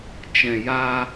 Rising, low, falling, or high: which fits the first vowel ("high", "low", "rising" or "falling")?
low